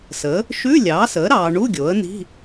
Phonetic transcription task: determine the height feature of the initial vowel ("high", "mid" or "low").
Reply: mid